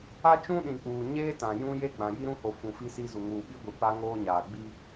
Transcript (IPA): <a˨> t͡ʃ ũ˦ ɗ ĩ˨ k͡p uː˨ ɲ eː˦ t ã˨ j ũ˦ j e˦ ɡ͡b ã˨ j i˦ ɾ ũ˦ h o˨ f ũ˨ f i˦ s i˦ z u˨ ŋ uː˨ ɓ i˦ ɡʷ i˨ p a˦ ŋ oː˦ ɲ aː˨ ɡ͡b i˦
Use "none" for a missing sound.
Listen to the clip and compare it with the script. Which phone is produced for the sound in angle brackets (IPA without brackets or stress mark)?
a˦